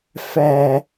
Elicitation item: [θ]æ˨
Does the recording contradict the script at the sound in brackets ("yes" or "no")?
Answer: yes